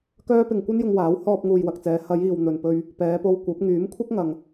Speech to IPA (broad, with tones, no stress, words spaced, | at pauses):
kœː˥pɪ˧ŋ kʷɐ˥njʊ˧ŋwaː˨˥w hɔː˧p̚ŋuː˨j wɐ˨k̚t͡sɛː˨˧ hɐ˨˧jiː˨w n̪ɵ˨npɵ˧ɥ | pɛː˨˧po˧wkʷɐ˨˥p̚ ŋyː˨˥mkʷʰɐ˥k̚ŋɐ˨ŋ